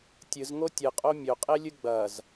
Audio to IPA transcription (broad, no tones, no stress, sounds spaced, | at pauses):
tʲ ɨ z ŋ o tʲ ɨ qʼ o mʲ ɵ qʼ e lʲ ɨ ɡ͡b ɐ z